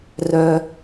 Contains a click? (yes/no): no